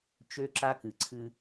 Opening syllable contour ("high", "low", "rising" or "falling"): high